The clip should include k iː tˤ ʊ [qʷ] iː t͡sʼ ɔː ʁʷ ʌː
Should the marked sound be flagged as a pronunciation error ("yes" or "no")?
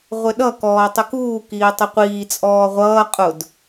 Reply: no